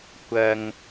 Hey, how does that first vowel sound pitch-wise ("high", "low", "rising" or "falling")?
low